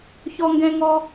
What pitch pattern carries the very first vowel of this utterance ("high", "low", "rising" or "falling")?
high